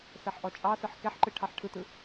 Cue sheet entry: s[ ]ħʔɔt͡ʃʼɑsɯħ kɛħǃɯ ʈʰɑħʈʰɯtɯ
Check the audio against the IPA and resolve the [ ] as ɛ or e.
ɛ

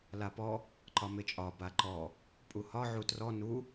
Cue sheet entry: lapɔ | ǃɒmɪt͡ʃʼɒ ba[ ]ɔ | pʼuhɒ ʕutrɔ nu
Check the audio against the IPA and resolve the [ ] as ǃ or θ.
ǃ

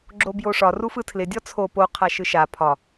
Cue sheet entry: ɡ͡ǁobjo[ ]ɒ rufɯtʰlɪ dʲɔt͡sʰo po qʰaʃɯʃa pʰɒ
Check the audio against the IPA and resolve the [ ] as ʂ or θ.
ʂ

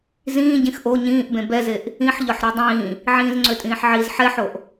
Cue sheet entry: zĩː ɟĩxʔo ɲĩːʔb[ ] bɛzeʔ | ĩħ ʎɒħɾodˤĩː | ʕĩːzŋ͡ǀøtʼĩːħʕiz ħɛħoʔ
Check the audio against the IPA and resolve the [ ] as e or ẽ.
ẽ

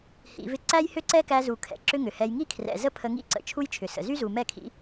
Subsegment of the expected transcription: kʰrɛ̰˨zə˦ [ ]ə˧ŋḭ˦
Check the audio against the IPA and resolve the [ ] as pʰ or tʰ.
pʰ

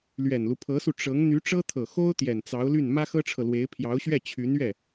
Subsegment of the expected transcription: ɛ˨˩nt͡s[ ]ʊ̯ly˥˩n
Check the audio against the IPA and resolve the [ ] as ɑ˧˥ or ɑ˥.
ɑ˧˥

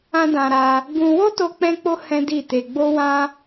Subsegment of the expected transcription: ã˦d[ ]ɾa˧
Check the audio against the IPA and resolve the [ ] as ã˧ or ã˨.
ã˧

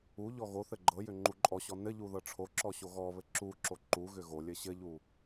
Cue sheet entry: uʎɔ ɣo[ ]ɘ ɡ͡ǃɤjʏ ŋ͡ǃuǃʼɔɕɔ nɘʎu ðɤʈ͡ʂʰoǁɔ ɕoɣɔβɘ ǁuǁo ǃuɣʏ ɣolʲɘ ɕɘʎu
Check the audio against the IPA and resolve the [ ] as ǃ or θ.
θ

